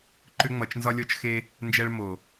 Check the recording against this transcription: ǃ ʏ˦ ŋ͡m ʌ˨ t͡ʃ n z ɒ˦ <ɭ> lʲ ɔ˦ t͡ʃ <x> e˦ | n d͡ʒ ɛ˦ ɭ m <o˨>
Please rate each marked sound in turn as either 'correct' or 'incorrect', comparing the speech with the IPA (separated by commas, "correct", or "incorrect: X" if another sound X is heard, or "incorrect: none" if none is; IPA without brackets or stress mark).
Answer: incorrect: none, correct, correct